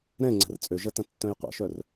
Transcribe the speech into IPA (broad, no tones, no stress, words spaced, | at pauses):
ɾɛ̃ ŋ͡ǀɛ̤rt͡sʼøʒɐ tɐ̃tːœ̃jqʷɛ̰ʃœr